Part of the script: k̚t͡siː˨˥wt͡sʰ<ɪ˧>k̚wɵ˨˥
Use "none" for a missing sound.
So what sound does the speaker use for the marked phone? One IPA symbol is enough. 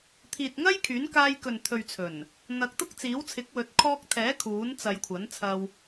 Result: ɪ˨˥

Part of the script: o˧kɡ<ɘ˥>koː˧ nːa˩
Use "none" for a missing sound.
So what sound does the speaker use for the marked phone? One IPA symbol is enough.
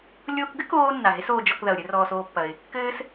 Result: ɘ˥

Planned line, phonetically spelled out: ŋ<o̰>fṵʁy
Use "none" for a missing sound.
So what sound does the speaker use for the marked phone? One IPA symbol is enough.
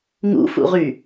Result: ṵ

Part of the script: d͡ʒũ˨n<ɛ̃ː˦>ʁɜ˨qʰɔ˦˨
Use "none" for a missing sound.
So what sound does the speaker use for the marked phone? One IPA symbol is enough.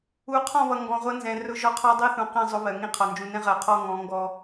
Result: ɛ̃˦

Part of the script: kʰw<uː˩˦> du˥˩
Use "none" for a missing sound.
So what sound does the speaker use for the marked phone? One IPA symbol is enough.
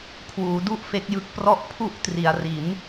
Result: uː˩˦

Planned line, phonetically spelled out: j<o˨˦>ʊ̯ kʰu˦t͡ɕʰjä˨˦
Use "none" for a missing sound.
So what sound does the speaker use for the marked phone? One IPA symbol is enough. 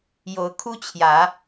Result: o˨˦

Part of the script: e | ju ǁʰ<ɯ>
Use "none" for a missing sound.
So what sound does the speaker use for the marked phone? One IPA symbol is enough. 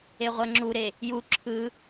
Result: ɯ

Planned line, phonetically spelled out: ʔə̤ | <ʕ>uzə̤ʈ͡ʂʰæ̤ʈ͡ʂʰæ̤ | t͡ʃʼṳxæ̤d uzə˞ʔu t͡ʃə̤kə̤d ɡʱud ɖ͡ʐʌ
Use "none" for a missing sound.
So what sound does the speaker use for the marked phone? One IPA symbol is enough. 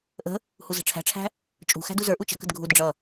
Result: h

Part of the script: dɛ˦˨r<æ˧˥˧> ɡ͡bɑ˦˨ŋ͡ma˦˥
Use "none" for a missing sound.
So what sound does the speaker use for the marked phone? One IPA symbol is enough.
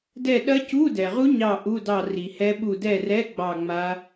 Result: ɛ˧˥˧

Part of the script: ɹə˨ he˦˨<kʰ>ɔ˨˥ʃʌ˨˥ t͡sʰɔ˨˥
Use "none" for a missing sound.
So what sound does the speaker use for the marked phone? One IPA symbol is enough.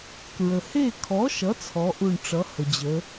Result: kʰ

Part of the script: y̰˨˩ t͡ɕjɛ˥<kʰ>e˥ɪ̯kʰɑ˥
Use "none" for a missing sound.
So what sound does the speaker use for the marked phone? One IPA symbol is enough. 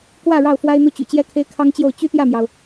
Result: kʰ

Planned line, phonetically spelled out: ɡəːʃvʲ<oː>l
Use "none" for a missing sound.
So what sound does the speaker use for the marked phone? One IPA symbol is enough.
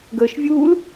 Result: uː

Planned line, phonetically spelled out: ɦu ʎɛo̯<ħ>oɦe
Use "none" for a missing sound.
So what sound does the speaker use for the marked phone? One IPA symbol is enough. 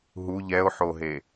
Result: ħ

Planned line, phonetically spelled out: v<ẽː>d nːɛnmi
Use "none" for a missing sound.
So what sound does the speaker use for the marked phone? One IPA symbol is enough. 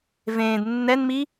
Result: ẽː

